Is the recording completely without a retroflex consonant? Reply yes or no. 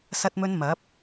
yes